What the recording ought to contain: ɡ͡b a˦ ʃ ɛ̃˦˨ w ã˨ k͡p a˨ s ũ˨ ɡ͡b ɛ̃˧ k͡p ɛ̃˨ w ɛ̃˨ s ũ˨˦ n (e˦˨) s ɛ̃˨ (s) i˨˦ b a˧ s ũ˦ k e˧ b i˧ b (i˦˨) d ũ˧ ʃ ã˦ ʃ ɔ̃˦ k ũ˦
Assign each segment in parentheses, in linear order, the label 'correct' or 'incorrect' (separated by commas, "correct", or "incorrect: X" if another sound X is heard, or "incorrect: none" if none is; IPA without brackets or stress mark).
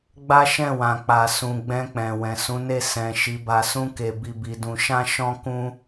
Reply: correct, incorrect: ʃ, incorrect: i˧